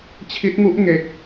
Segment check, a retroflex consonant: absent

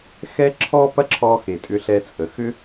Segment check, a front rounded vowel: present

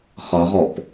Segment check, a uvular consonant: present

